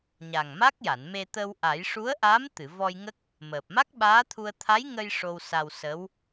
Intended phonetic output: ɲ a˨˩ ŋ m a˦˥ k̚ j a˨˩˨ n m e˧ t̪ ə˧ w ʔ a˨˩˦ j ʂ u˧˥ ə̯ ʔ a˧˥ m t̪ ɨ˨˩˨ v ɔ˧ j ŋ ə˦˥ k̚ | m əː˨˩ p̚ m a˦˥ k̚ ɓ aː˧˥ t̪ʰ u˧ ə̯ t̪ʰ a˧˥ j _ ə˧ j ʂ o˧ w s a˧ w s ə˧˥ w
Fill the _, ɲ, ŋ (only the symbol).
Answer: ŋ